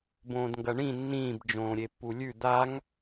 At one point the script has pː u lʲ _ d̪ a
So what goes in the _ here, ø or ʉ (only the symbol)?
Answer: ʉ